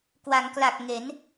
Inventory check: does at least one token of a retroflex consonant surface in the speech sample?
no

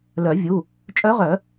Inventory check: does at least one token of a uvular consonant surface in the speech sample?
yes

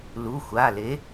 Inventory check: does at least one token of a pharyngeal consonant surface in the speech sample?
no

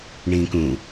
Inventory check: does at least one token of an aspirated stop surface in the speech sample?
no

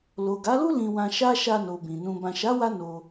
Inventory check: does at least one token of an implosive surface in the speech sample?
no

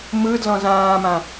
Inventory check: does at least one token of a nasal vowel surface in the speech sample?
yes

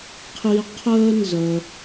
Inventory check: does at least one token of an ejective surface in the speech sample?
no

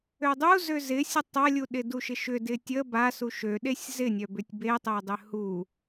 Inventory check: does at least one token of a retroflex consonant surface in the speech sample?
no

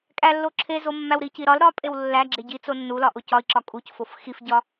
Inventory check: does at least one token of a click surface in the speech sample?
yes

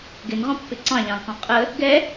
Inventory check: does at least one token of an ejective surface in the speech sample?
yes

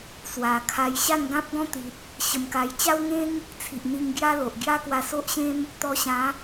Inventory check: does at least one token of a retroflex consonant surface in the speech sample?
no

